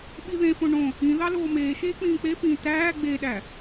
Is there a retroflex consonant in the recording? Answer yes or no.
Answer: yes